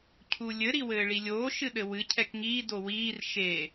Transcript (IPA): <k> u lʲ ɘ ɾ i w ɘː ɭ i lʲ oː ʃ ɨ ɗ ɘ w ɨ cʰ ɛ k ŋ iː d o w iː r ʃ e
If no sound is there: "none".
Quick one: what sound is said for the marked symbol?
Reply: cʰ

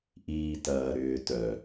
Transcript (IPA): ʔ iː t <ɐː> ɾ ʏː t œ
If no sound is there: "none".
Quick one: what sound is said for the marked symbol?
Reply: ɐː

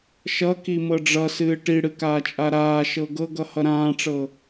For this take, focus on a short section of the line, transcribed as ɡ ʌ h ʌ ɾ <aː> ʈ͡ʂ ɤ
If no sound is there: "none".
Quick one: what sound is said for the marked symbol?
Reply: ãː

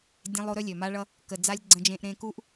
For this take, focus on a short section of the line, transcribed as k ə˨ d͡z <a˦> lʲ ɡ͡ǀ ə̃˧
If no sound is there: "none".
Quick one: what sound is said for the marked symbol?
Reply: a˧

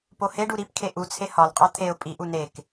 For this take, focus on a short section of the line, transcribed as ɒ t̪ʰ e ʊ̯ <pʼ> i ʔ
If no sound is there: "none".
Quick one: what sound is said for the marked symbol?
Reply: pʼ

